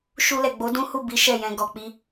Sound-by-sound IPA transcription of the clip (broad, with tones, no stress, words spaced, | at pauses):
ʃu˧lɛ˨ɡ͡bo˨˦ dũ˦hu˦˨ bi˨˦ ʃɛ˦˨jɛ̃˧ ɡɔ˨k͡pi˧